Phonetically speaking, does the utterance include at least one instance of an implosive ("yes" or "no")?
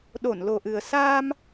yes